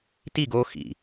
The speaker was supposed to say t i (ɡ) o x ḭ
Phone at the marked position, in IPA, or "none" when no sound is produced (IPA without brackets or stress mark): ɡ